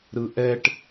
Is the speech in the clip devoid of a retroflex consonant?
no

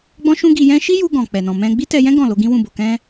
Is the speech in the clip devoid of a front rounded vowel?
yes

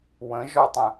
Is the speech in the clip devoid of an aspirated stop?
yes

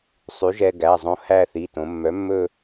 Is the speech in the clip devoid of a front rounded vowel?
no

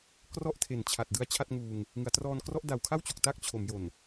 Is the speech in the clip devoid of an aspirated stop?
no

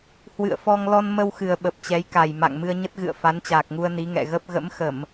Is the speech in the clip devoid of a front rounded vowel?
yes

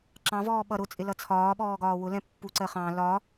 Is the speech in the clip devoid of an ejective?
no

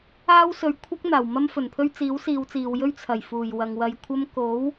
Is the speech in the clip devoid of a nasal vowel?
yes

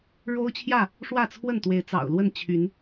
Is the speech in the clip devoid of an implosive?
yes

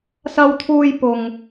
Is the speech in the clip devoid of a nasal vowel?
yes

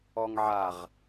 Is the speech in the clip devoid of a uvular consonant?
no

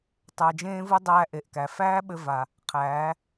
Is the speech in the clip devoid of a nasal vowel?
no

